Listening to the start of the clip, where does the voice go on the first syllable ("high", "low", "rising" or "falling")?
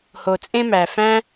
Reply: low